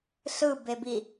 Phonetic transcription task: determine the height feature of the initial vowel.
high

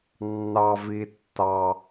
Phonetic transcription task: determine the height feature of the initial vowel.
low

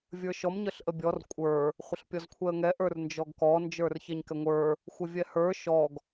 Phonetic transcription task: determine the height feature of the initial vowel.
mid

